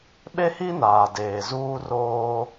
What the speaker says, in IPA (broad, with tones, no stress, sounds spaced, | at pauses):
ɓ e˦ h i˦ n aː˨ d eː˨ z uː˦ r oː˦